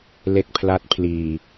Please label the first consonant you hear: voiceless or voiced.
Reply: voiced